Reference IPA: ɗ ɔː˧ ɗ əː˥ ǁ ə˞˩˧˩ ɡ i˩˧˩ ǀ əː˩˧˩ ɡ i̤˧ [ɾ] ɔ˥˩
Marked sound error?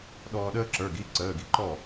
yes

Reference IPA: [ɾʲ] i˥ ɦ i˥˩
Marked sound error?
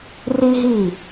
yes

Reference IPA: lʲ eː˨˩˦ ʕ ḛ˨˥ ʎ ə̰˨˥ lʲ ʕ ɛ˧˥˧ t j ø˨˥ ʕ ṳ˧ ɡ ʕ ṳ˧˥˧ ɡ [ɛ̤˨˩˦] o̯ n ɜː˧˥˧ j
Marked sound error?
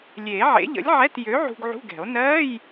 no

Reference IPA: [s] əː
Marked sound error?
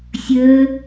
yes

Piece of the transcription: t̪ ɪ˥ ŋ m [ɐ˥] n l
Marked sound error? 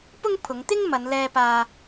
yes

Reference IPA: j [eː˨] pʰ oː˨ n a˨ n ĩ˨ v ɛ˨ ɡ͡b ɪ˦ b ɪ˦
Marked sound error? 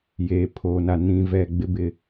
no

